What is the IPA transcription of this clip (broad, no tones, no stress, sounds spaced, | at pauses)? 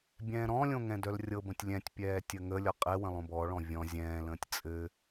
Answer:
bʲ ɛ̃ː ɾ ɔ̃ lʲ õ ŋ ɛ̃ d œ l rʲ ɤ b ə̃ tʲ lʲ ɛ̃ tʲ pʲ ɛː tʲ ə ŋ ə lʲ ɔ qʼ ɛ w ə̃ lˠ õ b ɔ ɭ ɔ̃ vʲ ɔ̃ zʲ ɛ̃ː l ə̃ː tʲ t͡sʼ ɘ